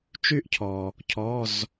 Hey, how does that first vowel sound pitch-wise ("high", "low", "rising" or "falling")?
high